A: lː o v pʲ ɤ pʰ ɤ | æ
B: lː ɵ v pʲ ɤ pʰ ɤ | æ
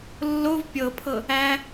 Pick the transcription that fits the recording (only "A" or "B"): A